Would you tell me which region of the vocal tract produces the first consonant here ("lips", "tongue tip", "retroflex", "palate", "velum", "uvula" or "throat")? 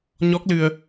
palate